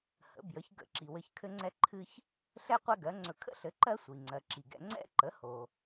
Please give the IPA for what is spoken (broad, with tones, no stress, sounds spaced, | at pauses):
h ə̰˩˥ b j ə˩˥ ç ɡ ə̰˧˩˧ ǁ i˩ w ɘ˧ ç kʰ ɘ˥ ŋ͡ǀ ɛ˥ ǃʰ ɨ˥ ç | ɬ ɛ˥ qʷ ɛ˥ ɡ ɜ˩˥ ŋ͡ǀ ɵ˧ kʰ ə̰˥ ɬ ɘ˩˥ ǃ ɜ˥ sʷ i˩ ŋ͡ǀ ɜ˩ ǁ i˩ ɡ ɛ̰˧ ŋ͡ǀ ɛ̰˥ ǃ ə˩˥ h o˩